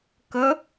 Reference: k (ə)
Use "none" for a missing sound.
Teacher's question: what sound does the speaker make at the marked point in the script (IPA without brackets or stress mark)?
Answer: ə